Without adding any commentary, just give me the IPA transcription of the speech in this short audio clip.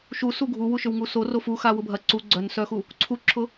ʃ u s u ɡʱ u w u ʃ ʏ w ŋ u s o r o f u x a w ʊ bʱ ɐ ǀ u ɡ͡ǀ œ n s œ x u | ǀʰ u ǁʰ ʊ

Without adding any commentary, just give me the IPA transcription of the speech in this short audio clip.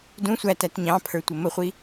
d ũ sʷ æ t æ t ɲ ɑ̃ pʰ ə˞ tʷ ə m ə χʷ i

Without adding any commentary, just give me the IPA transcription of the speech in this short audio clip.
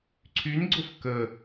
ǀʰ y n ɡ͡ǀ ʊ f k ə

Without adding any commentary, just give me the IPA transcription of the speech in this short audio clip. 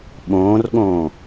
ɓ õː r ɠ õː

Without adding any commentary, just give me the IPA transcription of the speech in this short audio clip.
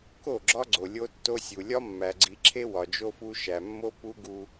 k o˦˨ ɡ͡ǁ ɒ˦ ɡ͡ǀ o˨ lʲ o˦ tː o˦ sʲ u˨ lʲ ɒ˦ mː æ˨ ɡ͡ǀ i˨ ǁʰ e˦ w ɒ˨ d͡ʒ o˦ f u˦ ʃ æ˨ mː o˦ p u˦ ɡ u˦

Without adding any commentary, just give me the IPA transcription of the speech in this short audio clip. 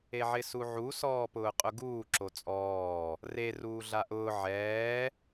e ʕ ɪ s u ʕ u s ɔː p ʊː qʼ ʊ ɡ uː ǁ o t͡sʼ ɔː | r e r uː ɮ a ʔ ʊː ʕ ɛː

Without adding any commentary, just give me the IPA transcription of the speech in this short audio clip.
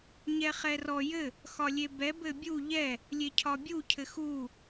ɲ ɛ χ ɛ r ɔ j ɘ | x ɒ lʲ e b ɛ b ɘ bʲ u ʎ ɛ | lʲ e cʰ ɒ bʲ u cʰ ɘ x u

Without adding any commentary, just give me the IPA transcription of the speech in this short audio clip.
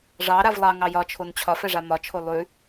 ʐ ɑ ɾ a v lˠ ɑ ŋ ɑ j ɒ t͡ʃʰ o n t͡ɕʰ ɒ f ɛ ʐ a m ɒ t͡ʃʰ o lˠ ʉ

